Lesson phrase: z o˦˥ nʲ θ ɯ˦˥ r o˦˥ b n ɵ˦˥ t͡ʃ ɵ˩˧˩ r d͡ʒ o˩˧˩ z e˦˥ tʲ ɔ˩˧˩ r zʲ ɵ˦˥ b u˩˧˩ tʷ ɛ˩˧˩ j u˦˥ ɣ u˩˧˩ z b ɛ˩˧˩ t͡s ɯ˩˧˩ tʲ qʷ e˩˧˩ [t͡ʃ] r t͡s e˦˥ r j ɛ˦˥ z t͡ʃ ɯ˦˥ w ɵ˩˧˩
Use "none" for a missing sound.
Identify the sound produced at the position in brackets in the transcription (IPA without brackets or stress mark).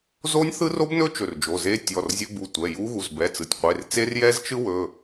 none